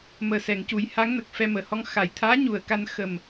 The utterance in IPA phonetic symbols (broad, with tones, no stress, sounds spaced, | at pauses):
m əː˨˩ s ɛ˨˩˨ ŋ c u˨˩˦ j h a˧˥ ŋ n ə˨˩ k̚ f ɛ˧ m əː˨˩ h ɔ˧ ŋ x a˨˩˨ j t̪ʰ aː˧˥ ɲ u˨˩ ə̯ k a˧ n x ə˨˩ m